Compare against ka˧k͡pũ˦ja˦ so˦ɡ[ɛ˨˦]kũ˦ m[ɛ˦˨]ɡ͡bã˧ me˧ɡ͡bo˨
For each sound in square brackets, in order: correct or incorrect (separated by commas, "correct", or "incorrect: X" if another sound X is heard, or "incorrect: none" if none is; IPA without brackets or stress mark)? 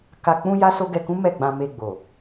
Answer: incorrect: ɛ˧, correct